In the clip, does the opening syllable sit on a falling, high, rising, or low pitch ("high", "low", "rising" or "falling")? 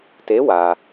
rising